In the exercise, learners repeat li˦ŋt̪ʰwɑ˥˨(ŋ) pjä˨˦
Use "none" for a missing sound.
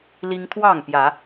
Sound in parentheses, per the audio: ŋ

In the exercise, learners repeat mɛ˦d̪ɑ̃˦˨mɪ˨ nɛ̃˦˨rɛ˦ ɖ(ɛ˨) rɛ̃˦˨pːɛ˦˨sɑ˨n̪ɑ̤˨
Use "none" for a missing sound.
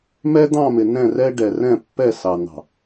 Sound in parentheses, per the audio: ɛ˨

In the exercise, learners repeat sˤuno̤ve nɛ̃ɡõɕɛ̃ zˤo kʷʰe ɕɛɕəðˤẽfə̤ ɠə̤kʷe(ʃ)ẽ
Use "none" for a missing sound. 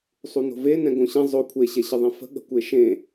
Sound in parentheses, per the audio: ʃ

